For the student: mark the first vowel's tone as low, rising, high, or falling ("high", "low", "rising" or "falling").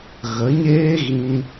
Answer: rising